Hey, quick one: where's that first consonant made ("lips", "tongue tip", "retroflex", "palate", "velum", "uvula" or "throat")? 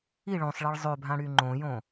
retroflex